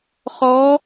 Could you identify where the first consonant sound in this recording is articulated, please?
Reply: uvular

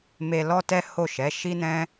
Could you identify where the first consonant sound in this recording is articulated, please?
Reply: labial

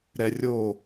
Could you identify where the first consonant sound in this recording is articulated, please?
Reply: alveolar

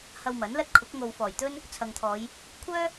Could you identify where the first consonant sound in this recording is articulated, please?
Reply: glottal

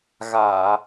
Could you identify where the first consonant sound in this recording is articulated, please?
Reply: velar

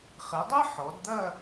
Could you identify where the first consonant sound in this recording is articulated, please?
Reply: uvular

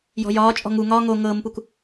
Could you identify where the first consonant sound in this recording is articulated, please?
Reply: palatal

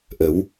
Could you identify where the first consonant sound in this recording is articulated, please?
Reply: glottal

